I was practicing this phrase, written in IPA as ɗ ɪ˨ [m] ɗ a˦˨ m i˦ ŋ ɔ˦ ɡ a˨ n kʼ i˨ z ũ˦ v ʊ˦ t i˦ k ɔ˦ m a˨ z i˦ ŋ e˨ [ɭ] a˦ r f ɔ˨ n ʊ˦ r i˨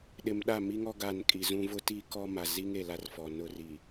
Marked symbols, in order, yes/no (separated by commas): yes, no